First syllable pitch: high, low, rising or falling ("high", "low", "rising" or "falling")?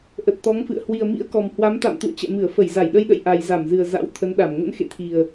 low